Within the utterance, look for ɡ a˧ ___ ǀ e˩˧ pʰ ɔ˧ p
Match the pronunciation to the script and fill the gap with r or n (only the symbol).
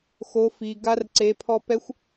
r